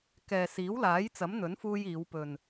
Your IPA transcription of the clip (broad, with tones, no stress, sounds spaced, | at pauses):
k ɛː˨ s iː˨˥ w l aː˨˥ j t͡s ɐ˨˥ m n̪ ɵ˨˥ n f uː˧ j iː˨˧ w p ɵ˨ n